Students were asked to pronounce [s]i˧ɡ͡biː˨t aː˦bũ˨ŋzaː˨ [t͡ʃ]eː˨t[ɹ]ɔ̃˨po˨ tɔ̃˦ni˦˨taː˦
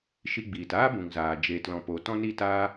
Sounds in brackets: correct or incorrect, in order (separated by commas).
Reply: incorrect, incorrect, incorrect